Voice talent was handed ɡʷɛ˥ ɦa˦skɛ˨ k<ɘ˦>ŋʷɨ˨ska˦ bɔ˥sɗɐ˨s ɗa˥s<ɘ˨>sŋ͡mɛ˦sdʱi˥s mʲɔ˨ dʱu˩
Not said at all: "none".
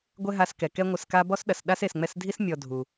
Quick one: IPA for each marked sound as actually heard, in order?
ɛ˦, e˨

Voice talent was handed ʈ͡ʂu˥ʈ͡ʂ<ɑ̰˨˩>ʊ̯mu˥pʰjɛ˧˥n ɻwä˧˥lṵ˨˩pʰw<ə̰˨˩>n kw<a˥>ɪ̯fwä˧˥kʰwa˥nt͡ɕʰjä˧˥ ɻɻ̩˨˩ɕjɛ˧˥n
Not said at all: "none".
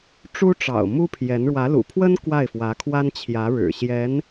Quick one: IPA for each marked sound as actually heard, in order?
ɑ̰˨˩, ə˥, a˥˩

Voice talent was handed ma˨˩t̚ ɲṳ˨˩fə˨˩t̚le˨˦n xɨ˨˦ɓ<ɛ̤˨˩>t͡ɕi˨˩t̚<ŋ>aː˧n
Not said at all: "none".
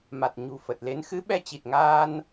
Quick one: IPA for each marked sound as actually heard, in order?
ɛ˧, ŋ

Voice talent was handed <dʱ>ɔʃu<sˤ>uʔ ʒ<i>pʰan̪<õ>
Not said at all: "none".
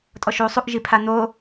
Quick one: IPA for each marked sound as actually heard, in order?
tʼ, sˤ, i, o

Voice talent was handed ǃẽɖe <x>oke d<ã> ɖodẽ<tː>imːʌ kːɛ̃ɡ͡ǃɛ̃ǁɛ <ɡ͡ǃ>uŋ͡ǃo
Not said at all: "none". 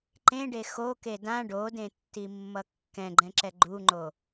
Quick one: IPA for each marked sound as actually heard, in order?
x, ã, tː, ɡ͡ǃ

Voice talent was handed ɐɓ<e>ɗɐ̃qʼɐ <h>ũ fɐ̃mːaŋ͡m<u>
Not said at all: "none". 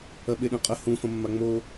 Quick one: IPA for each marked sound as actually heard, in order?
e, h, o

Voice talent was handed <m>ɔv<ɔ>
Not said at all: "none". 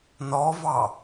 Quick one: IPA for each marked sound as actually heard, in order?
n, ɑ

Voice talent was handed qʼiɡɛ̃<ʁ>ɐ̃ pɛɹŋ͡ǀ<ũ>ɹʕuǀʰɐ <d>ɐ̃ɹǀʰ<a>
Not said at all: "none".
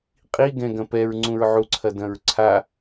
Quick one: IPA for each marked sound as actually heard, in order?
ɡ, ũ, d, a

